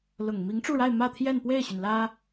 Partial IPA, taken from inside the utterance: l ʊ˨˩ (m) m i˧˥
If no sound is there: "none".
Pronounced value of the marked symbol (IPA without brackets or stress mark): ŋ